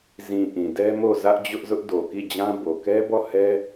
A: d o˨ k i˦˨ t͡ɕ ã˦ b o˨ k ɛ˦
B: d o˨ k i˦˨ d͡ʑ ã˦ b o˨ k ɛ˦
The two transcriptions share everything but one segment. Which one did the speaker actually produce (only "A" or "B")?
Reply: B